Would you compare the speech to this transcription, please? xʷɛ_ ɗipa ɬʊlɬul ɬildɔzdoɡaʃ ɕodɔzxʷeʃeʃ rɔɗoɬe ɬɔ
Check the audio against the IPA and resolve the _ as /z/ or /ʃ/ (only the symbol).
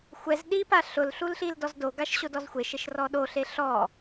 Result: z